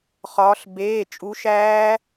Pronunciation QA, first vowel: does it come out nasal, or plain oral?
oral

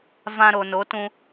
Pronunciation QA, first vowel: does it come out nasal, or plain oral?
nasal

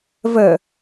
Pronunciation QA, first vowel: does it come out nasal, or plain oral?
oral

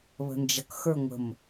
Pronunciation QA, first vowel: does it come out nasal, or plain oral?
oral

